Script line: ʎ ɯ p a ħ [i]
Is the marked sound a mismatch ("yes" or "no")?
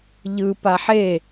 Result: yes